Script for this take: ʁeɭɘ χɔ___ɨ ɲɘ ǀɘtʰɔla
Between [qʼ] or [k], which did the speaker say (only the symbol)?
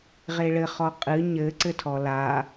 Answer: qʼ